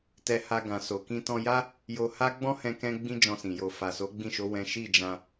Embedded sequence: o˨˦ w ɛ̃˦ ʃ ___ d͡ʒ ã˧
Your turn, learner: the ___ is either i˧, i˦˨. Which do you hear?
i˦˨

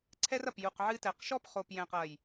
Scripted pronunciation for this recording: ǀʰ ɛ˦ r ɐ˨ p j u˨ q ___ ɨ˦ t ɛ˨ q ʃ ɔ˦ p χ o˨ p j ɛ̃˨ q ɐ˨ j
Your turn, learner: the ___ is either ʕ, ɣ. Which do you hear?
ʕ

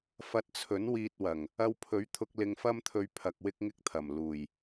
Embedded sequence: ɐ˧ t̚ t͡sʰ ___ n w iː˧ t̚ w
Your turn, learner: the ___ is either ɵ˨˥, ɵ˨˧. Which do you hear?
ɵ˨˥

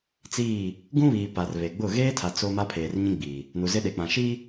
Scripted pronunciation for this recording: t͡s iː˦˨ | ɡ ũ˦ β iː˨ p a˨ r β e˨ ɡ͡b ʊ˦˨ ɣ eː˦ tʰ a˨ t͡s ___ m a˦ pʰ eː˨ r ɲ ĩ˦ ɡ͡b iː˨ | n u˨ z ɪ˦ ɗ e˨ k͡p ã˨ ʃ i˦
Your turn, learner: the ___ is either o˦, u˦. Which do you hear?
o˦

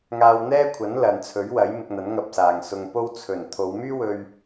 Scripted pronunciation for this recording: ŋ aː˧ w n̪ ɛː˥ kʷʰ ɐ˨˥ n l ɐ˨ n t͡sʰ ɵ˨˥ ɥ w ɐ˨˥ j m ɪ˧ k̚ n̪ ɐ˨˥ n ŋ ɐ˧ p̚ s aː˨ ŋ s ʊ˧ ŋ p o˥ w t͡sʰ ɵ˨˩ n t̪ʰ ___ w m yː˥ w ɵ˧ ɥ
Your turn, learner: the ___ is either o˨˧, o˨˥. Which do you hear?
o˨˧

